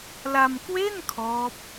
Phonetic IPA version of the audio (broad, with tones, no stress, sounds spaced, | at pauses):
l a˧ m k w e˥˩ n kʰ ɔː˦˥ p̚